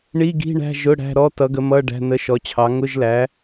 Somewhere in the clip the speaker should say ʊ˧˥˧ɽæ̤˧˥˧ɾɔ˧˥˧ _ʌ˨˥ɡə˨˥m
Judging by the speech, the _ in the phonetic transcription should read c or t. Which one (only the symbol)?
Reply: t